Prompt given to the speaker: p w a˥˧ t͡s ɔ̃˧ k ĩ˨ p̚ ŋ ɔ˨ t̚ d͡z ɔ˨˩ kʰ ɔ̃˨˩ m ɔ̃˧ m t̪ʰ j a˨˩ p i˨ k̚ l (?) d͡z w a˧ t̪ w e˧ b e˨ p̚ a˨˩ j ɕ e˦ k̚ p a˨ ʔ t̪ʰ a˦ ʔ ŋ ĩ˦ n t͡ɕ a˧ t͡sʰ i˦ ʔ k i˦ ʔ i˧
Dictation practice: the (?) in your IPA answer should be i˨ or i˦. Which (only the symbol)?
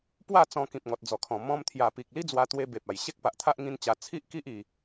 i˦